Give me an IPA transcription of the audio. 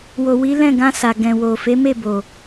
w o˨ w i˨˦ l ɛ̃˦˨ ɡ ã˧ s a˨ ɡ ɛ̃˨ w o˨ f e˨˦ m e˦˨ b o˨

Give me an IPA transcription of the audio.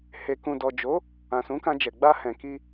h e˧ k ũ˧ d ɔ˨ d͡ʒ o˨˦ | ã˨ s ũ˨˦ k ã˧ d͡ʒ ɛ˨ ɡ͡b a˧ h ɛ̃˨ k i˧

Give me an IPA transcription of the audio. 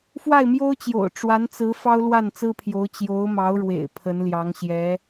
f w a˥˩ ɪ̯ m j o˥ ʊ̯ t͡ɕ j o̰˨˩ ʊ̯ ʈ͡ʂ w a˧˥ n t͡s ɹ̩˧˥ f ɑ˥ ʊ̯ l w a˥˩ n t͡s ɹ̩˥ pʰ j o˧˥ ʊ̯ t͡ɕ j o˧˥ ʊ̯ m ɑ˧˥ ʊ̯ ɻ w ḛ˨˩ ɪ̯ pʰ ə˧˥ n l j ɑ˧˥ ŋ ɕ j ɛ˧˥

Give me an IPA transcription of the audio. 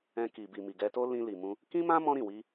ɛ̃˧ k i˨ b i˨ m i˨ ɡ ɛ˧ t o˦ l ĩ˧ l i˨ m ũ˧ | k ĩ˦ m ã˦ m ɔ̃˦ ɾ ĩ˦˨ w i˧

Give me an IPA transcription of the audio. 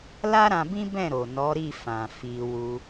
l a˦ ɾ ã˧ b ĩ˦ b ɛ̃˦˨ ɾ o˨ n ɔ˨˦ ɾ i˦˨ f ã˨ f i˧ w u˧

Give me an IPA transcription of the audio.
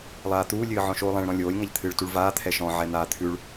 lˠ aː t̪ uː lʲ ɨː ʕ ɔ̃ ʃ oː lˠ ɛ̃ ɭ ɾ ɔ̃ lʲ oː lʲ ŋ a ʎ t̪ʰ ɨː ɭ t u ɭ v aː t̪ʰ ɛ ʃ ɔ̃ ʕ ɛ n̪ aː t̪ʰ ʉ ɭ

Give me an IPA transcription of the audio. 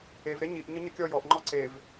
e v ɾ e ɲ i ʔ ɲ ə ɲ ə kʲ ɔ j ɔ ʔ ŋ͡ǃ ɔ ǀ e v

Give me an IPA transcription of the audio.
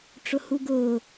ʈ͡ʂ ʊ h u ɡ ʊː

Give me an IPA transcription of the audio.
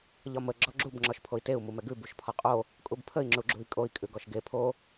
ʎ ɒ m ə ɡ͡ǁ ɔ ɡ͡ǁ u b ŋ͡ǁ ɔ ʃ pʰ o i̯ t e u̯ m u m ɛ ɡ ʉ b u ʃ pʰ ɒ qʼ o | kʼ u b pʰ ə i̯ ŋ͡ǁ u ɡ͡ǁ u i̯ kʼ o i̯ kʼ ʉ ɡ ɔ ʃ ɡ e pʰ o

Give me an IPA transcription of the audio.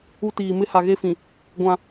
u˦ t iː˨ m ɪ˦ h a˨ ɣ e˦ f ĩ˨ | ɡʷ ã˦

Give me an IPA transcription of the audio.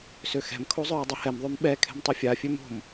s ø x ɛ̤ m kʰ o zˤ œː dˤ œ h ɛ m ðˤ ø m ɓ ɛ kʰ ɛ̤ m tˤ i fʲ a fʲ ø m o̤ m

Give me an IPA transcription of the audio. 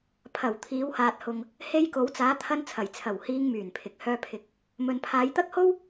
pʰ ɐ˨˩ w t̪ʰ iː˨˧ w h aː˨ t̚ h ʊ˨ ŋ | h e˧ j k o˨˧ w t͡s aː˨˧ t̪ʰ ɐ˧ n t͡sʰ ɐ˨˩ j t͡sʰ ɐ˨˩ w h iː˧ ŋ m yː˨˩ n pʰ ɪ˨ k̚ h œː˧ pʰ ɪ˨˥ k̚ | m ɵ˨ n pʰ aː˨˧ j t̪ ɐ˥ k̚ h o˥ w

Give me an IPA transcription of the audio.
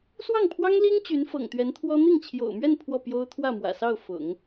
s w ɑ˥˩ ŋ pʰ w ɑ˥ ŋ l i˥ ŋ t͡ɕ y˧˥ n f ɤ̰˨˩ ŋ t̪ ɥ ɛ˧˥ n t̪ʰ w ɔ˥ n̪ i˥˩ ŋ t͡ɕʰ j o̰˨˩ ʊ̯ m ɥ ɛ˥˧ n pʰ w ɔ˥˩ p j o˥ ʊ̯ t̪ʰ w ä˥˩ m w ä̰˨˩ s ɑ˥˩ ʊ̯ f ʊ̰˨˩˦ ŋ

